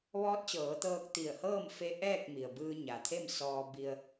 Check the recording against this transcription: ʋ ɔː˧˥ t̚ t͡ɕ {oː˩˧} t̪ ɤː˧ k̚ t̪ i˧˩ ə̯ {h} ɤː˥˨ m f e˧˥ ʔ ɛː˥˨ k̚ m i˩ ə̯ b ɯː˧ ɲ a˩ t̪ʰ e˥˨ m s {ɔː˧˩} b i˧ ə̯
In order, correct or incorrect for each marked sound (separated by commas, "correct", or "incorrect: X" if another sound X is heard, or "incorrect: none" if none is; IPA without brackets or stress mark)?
incorrect: ɤː˩˧, correct, incorrect: ɔː˧